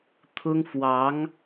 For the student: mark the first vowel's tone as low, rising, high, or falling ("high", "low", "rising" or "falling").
high